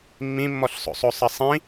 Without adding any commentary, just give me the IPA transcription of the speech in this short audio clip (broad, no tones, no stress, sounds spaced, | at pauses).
mː ĩ mː ɔ ɬ sˤ o̰ sˤ o sˤ ɐ sˤ ĩ